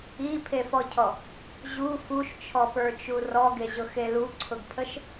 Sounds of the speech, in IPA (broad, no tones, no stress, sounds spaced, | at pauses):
i pʰ e f ɔ cʰ ɔ | ʑ u f u ʃ t͡ʃʰ ɔ p ə˞ t͡ʃ u r ɔ ɡ e ʑ ʊ x e l u ǀʰ ʊ ɡ pʰ ə ʃ